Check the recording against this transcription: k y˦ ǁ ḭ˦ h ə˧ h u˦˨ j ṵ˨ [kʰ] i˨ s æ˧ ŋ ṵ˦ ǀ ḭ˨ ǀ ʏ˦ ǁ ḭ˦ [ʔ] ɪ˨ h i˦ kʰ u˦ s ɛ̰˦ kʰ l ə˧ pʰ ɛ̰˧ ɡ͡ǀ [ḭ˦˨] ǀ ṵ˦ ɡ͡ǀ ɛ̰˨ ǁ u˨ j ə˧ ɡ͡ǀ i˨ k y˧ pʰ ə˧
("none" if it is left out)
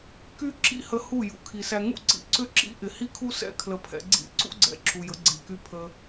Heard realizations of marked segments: kʰ, ʔ, ḭ˦˨

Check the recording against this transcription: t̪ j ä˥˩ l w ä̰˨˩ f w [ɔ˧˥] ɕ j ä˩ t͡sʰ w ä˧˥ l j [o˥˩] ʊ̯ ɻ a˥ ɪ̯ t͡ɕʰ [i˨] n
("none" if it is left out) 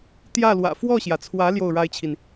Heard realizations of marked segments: ɔ˥˩, o˥˩, i˨

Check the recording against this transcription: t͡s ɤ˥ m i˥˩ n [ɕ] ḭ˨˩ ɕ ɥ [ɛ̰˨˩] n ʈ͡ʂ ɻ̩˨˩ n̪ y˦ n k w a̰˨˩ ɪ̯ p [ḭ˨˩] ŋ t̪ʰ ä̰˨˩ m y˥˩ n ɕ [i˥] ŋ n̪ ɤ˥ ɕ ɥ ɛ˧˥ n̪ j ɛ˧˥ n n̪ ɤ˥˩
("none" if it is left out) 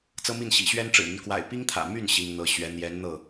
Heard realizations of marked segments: ɕ, ɛ˥, i˥, i˥

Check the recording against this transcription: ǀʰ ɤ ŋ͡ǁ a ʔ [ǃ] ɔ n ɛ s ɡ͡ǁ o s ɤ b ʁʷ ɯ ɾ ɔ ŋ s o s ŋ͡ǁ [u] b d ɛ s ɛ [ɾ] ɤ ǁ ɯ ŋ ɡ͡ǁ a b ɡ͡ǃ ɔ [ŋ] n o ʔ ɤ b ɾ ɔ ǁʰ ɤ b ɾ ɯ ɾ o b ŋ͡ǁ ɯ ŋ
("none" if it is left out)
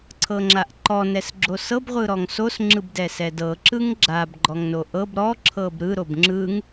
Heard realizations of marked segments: ǃ, ɯ, d, ŋ

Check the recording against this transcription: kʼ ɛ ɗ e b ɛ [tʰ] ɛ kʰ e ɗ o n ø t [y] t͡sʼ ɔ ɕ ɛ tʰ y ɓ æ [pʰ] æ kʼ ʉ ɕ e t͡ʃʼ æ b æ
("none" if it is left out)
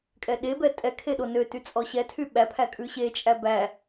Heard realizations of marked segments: tʼ, y, pʰ

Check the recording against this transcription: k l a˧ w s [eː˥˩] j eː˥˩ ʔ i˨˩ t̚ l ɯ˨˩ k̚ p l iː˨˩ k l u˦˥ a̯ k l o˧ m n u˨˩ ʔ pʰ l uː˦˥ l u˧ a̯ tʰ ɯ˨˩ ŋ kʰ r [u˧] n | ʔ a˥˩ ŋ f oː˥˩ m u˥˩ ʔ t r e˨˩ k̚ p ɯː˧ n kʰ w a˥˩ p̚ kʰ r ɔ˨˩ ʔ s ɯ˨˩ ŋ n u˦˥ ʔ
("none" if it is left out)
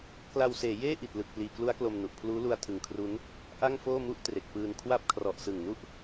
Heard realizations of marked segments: eː˩˦, u˦˥

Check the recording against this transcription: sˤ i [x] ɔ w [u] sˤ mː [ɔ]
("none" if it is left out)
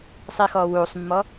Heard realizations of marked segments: x, u, ɔ

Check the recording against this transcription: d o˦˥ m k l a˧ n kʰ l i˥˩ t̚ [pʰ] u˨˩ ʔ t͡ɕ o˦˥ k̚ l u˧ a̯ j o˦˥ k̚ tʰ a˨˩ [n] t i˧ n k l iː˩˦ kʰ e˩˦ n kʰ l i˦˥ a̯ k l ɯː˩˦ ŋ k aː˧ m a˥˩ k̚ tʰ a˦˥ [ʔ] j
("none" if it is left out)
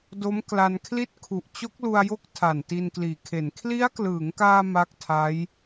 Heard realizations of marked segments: kʰ, n, none

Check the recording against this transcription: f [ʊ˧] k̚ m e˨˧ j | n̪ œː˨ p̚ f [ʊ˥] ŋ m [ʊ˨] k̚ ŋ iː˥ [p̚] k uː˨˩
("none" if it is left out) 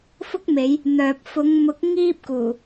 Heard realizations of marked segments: ʊ˥, ʊ˨˧, ʊ˨˥, p̚

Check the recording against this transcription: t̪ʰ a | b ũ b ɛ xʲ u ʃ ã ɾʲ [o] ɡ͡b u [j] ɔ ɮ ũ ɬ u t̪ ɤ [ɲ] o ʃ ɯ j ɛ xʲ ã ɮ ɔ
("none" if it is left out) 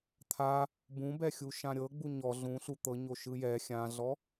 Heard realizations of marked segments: ɤ, ɲ, ɲ

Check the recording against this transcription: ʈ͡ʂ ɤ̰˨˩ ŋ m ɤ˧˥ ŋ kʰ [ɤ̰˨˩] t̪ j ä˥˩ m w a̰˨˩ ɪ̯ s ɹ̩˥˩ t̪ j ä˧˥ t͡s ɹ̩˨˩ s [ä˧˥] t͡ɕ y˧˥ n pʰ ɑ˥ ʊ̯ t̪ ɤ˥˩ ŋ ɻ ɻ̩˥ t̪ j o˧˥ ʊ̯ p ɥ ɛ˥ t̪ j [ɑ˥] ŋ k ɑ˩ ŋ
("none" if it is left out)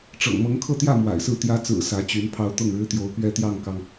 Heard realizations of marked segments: ɤ˥˧, ä˧˥, ɑ˥˩

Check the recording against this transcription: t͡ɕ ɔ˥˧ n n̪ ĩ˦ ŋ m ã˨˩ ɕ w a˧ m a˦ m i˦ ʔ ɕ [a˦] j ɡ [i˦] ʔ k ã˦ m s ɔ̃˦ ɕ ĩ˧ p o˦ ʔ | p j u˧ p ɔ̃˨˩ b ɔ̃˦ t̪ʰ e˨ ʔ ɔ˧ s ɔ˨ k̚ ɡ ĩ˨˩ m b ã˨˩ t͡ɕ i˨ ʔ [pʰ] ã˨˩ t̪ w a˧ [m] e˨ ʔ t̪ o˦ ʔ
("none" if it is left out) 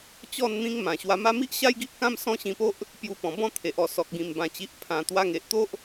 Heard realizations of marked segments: a˦, i˦, pʰ, ŋ

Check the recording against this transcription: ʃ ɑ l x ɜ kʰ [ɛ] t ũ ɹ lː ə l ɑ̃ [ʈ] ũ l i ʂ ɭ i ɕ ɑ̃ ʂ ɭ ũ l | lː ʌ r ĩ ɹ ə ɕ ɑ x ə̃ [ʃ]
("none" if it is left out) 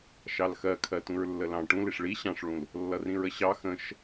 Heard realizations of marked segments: ɜ, ʈ, ʃ

